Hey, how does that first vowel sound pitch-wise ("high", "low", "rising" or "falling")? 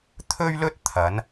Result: high